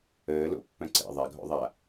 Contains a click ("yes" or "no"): yes